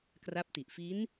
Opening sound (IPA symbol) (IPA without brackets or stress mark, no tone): k